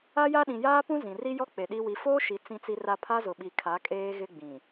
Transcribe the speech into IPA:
a˦ja˦ɗĩ˨ jaː˦pũ˦ zĩ˨ri˦jɔ˦ k͡pe˨ɗi˦ wi˨foː˦ʃi˨ t͡sĩ˦t͡si˦ra˦ pʰa˦zʊ˨ɓi˨ kʰa˨˦kʼeː˦ɣɪ˦ ɡ͡bĩ˨

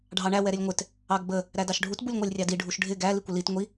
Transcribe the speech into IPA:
ɖʱɑɳæ wɛɾɪlʲŋʷɪt | ɑɡbə | ɾædɑʃɖʱut bulʲŋʷælʲrʲɑdi ɖʱuʃɖʱɪ ɡæ likʷɪlit ŋʷi

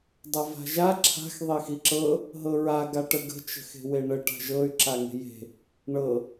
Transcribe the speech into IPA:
dˤava̤ʒa ǁʰa̤x ðˤexiǁɤ | ɦɤɹa ɡaʈəɡə̤ t͡ʃə̤xe̤weɳə ʈa̤ʒɤy̯ ǁaŋe̤je̤ | ɳɤ

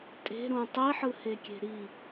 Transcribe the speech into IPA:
tʼe̤ɾũ tˤiħɯhekʲe̤ ɾi

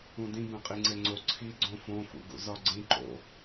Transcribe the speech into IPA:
ũdĩ bẽqʼiŋ͡ǀeŋ͡ǀo ǀʰi ɡ͡ǀõfõ fṵɡṵzɒɡ͡ǀĩ ǃo̰

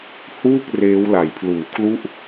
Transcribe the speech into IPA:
huː˥˩k̚ reː˦˥wla˨˩jpʰluː˨˩kʰlu˥˩ʔ

